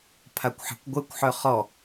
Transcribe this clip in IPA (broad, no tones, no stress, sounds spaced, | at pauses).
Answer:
pʰ a kʷ ħ ɛ̤ kʷ ɡʷ ɛ kʷ ħ œ χ ɔ